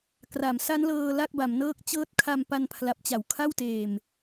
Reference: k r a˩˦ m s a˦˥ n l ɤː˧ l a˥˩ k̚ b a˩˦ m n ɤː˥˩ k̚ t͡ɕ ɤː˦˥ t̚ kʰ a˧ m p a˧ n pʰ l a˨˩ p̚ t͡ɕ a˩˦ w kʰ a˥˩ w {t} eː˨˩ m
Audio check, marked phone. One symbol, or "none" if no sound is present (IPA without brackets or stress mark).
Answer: t